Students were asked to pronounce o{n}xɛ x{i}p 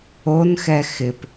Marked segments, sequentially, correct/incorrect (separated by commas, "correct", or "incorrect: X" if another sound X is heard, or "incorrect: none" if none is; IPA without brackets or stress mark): correct, incorrect: ɪ